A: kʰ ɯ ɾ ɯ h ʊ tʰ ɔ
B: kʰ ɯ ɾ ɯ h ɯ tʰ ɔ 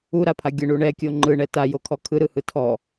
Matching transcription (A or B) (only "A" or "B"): B